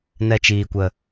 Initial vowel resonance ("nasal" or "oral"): oral